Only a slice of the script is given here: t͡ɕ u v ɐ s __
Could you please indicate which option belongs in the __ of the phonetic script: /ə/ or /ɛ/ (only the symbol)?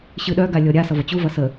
ə